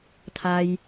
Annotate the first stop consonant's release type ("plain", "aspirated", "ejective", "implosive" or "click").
aspirated